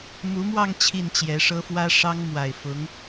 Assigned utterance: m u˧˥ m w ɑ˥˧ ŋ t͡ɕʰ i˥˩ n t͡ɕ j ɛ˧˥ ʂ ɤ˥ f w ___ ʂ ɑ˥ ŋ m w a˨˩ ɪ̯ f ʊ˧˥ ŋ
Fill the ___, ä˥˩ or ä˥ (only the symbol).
ä˥